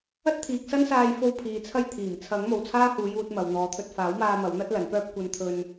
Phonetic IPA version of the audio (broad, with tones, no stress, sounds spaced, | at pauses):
ɐ˥ t̚ t̪ʰ iː˨ k̚ s ɐ˥ n s aː˧ j f o˧ w pʰ iː˨ t͡sʰ ɐ˥ j t̪ʰ iː˨˩ m t͡sʰ ɐ˨˥ ŋ m o˨ w t͡sʰ aː˥ h uː˨˧ j uː˧ t̚ m ɐ˨ w n̪ ɔː˨˧ t̪ʰ ɵ˧ t̚ f aː˨˥ w m aː˧ m ɐ˨˥ w n̪ ɐ˥ t̚ l ɐ˨˥ n p œː˥ p̚ kʷ ɐ˧ n t̪ʰ ɵ˧ n